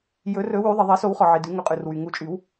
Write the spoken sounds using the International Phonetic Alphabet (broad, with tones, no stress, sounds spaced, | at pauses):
j ɵ˨˩˦ r ɵ˨˩˦ w y˨˩˦ ðˤ ɛ˩ ðˤ ɛ˨˩˦ s o˨˩˦ w χ ɔ˩ ʕ i˩ d ʉ˨˩˦ ŋ ɵ˩˧˩ qʼ ʉ˩ r w y˩ ŋ u˨˩˦ t͡ʃʼ y˨˩˦ w